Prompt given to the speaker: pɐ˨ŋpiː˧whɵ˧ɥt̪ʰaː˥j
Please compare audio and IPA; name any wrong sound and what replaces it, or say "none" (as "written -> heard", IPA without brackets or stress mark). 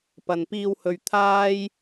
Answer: ŋ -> n